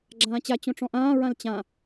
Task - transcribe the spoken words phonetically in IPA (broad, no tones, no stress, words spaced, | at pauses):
ɡ͡ǁãːt͡ɕa t͡ɕõʈ͡ʂɔ̃ʔãː ɹãlt͡ɕã